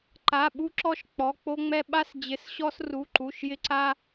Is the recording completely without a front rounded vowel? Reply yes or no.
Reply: yes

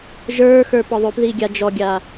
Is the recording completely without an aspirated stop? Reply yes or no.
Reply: yes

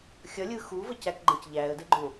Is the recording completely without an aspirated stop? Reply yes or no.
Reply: yes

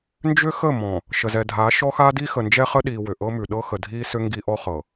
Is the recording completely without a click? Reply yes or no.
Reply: yes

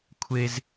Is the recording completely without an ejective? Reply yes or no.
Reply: yes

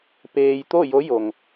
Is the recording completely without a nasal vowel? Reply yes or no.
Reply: yes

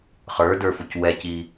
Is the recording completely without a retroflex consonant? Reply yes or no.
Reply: yes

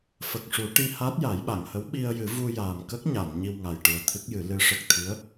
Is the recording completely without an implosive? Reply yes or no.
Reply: no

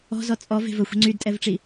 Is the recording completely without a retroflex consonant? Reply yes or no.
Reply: no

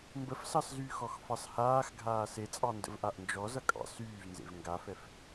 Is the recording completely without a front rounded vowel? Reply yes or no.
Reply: no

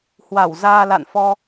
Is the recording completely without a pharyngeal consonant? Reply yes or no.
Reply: yes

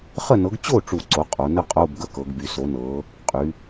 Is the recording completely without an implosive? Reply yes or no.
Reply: yes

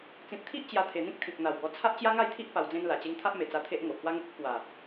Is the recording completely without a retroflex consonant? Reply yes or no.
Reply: yes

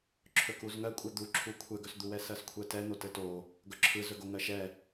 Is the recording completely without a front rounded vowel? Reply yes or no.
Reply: yes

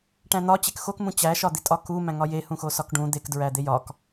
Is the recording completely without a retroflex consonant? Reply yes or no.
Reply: no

